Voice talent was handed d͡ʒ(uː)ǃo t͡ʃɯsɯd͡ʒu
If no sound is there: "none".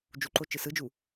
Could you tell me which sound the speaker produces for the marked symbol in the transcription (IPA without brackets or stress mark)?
u